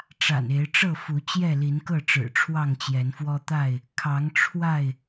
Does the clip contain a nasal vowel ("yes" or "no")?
no